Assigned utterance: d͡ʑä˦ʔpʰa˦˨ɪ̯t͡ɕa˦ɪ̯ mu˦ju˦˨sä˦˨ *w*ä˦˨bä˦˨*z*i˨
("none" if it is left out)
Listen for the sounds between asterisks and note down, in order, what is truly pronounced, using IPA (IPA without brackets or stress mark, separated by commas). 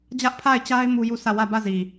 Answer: w, z